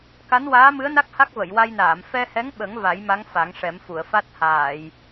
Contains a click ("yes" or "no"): no